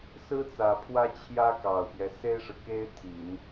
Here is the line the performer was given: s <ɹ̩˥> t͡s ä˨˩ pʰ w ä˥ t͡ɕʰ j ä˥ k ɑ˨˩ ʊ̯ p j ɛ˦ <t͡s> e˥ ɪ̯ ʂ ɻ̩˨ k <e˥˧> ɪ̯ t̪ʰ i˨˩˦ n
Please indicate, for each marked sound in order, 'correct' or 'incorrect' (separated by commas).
correct, incorrect, incorrect